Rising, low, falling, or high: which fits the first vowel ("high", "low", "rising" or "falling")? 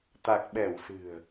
low